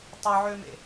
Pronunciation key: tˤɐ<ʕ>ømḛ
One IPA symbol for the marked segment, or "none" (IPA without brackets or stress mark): ʕ